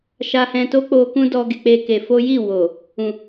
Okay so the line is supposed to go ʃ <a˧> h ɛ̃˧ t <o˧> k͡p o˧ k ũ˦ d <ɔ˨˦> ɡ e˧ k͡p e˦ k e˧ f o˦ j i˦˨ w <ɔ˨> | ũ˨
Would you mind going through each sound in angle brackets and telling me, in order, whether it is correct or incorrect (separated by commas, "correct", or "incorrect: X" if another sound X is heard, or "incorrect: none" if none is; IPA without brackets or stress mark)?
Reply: correct, incorrect: o˦, incorrect: ɔ˦, incorrect: o˨